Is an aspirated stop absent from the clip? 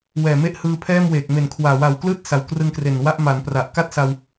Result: no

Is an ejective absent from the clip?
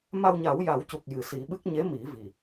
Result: yes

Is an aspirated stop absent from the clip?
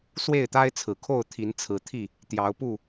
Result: no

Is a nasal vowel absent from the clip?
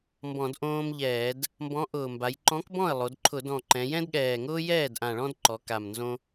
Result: no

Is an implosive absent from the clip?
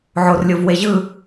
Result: yes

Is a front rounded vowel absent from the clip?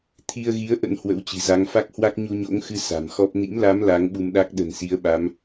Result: yes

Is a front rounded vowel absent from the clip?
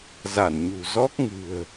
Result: yes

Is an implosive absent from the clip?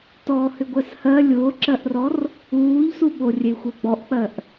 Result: no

